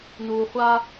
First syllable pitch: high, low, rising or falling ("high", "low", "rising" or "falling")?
low